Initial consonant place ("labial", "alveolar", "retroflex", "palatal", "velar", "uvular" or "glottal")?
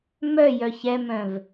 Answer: labial